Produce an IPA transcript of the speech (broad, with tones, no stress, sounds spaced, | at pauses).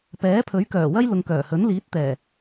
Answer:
p ɛː˨˥ pʰ ɵ˨˥ ɥ k œː˨˩ w ɐ˥ j l ʊ˨ ŋ k œː˨˩ h ɵ˨˥ n l iː˨˥ t̚ t̪ ɛː˨˩